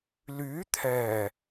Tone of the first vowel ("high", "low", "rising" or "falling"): rising